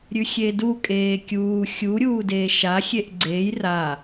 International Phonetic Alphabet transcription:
ɾʲ ʉ xʲ e d u kʼ eː kʲ uː xʲ u ɾʲ uː d eː ʃ a xʲ e ʔ ɡ͡ǀ e j r a

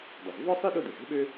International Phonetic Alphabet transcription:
dˤ ɐ˩ z v ɔ˥ sˤ i˥ ɗ ʊ˥ d̪ ɪ˩ z e̤˥ ɓ ø˥

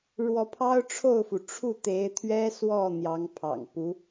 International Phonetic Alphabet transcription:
ɻ w ɔ˧˥ pʰ ɑ˥ ʊ̯ ʈ͡ʂʰ o˥˩ ʊ̯ f u˩ ʈ͡ʂʰ u˥˩ t̪ e˧˥ ɪ̯ t̪ʰ ɥ ɛ˥ s w ɔ˥˩ n̪ j ɑ˧˥ ŋ pʰ ɑ̰˨˩ ŋ p u˧˥

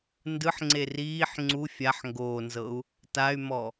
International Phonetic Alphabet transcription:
n d ɯ ħ ŋ͡ǀ e r iː ħ ŋ͡ǀ u fʲ a ħ ŋ ɡ oː n z ɤ u̯ | t a y̯ m ɔ

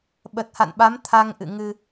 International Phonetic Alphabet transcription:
ɓ ə˨˩ t̚ h a̰˧˨ n ɓ a˨˦ m t̪ʰ a˧ ŋ ʔ ɨ̰˧˨ ŋ ɨ˧

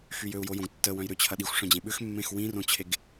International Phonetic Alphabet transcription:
x y j ø u̯ j o j õ ɡ tː ə w œ̃ j ɾ ʏ t͡ɕʰ ɐ ɗ i xʷ ʂ œ̃ d͡ʑ ẽ ɓ ʏ x mː ẽ x w ĩ r õ t͡ɕʰ e ɡ

